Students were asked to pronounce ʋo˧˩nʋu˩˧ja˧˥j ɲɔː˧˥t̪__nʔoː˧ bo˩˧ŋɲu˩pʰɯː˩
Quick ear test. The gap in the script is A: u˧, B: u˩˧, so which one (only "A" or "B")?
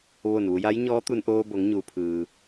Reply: A